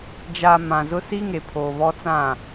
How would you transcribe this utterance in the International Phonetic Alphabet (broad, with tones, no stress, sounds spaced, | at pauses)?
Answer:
d͡ʒ a˨ m ã˨ z ʊ˦ s i˦ ŋ e˨ pʰ oː˨ β ɔ˦ t͡s ã˦˨